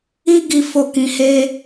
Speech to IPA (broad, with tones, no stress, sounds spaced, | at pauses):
i˦ ɡ i˦ f o˦˨ k ĩ˧ h e˦